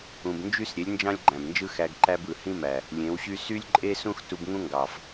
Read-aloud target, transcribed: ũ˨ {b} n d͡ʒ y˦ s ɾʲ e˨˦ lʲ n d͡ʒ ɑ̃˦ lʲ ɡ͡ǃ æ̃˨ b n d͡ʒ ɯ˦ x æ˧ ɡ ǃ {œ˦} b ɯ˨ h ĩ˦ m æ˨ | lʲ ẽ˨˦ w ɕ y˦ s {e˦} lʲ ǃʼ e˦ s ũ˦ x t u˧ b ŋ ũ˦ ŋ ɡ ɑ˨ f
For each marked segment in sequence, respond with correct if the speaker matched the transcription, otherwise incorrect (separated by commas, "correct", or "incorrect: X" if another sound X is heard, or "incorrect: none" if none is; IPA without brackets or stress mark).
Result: correct, incorrect: æ˦, incorrect: y˦